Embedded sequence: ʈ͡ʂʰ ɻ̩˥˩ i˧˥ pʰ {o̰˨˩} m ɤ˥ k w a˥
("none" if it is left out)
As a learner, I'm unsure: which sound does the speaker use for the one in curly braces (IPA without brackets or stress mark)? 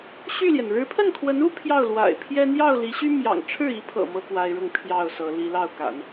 ɤ̰˨˩